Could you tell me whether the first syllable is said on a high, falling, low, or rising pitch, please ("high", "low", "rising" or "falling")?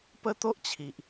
high